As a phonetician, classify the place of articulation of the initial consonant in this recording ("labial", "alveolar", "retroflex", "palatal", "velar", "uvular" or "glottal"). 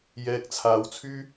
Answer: palatal